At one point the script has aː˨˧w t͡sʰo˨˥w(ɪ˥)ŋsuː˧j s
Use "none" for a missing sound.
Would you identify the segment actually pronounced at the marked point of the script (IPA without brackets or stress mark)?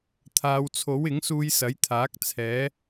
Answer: ɪ˨˥